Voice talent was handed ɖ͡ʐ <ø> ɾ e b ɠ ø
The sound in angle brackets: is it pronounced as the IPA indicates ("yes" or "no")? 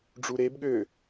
no